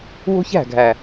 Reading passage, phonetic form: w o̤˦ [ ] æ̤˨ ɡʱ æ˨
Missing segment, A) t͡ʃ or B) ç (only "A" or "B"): B